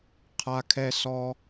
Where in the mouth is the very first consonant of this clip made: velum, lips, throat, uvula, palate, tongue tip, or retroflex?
uvula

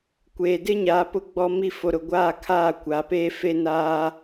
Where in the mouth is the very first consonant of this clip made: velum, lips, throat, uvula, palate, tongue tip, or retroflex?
velum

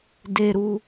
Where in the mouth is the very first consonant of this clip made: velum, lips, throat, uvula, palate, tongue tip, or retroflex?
tongue tip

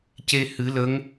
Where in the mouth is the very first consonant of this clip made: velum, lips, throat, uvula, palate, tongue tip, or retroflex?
palate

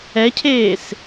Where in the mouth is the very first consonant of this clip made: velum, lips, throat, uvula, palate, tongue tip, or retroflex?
palate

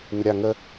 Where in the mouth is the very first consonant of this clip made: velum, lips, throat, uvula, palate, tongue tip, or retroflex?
tongue tip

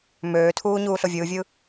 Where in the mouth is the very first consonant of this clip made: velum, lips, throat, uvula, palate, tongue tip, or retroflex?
lips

